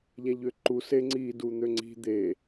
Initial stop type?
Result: click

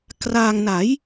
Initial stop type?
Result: plain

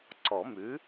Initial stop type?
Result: click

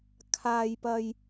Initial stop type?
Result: aspirated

